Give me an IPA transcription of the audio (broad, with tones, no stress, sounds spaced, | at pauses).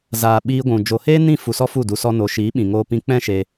z aː˨ ɓ iː˧ ɡʷ ũ˨ d͡ʒ o˨ h eː˦ n ĩ˦˨ f u˧ s ɔ˦ f u˦˨ d u˧ s ɔ˦ n o˧ ʃ iː˨˦ ɓ ĩ˨ ŋ oː˧ p ĩ˦ k͡p ɛ̃˦ ʃ e˧